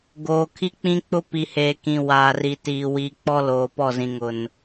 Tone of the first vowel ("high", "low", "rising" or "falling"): low